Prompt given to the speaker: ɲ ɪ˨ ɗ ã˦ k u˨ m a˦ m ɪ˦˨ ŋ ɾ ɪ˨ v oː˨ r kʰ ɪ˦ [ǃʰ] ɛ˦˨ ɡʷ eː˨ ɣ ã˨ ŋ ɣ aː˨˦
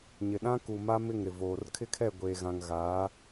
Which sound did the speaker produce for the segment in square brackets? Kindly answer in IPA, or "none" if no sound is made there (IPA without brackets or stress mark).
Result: kʰ